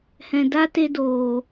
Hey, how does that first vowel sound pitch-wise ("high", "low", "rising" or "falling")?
low